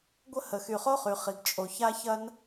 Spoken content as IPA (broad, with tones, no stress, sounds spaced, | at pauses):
ɡʷ ə˥ h ə˩ x y˩ χ o˥ χ y˩ χ i˩ ɡ t͡ʃʼ o˩ ç a˥ ç ɐ˥ n